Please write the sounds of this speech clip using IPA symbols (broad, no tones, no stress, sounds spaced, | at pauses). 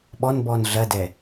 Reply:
ɓ ɔ n b ɔ n ɮ ɐ d ɛ